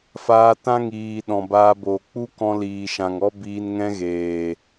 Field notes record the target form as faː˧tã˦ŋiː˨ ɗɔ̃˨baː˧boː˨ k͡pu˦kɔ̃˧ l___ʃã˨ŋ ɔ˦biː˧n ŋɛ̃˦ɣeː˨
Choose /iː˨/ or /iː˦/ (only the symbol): iː˨